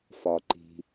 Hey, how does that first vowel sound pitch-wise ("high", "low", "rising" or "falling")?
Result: low